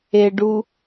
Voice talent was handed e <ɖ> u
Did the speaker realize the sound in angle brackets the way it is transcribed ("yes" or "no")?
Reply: yes